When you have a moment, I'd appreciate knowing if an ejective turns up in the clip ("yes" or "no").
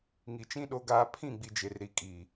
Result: yes